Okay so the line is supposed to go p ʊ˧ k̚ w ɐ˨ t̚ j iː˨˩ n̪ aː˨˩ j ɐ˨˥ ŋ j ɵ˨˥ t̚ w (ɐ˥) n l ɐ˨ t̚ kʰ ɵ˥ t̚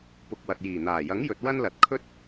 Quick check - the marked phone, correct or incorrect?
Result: correct